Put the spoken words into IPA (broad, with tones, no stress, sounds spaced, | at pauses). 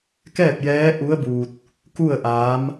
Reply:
k ɛː˥˨ p̚ j ɛː˧˥ ʔ u˧˥ ə̯ b uː˧ t̚ | k u˥˨ ə̯ ʔ aː˧˥ m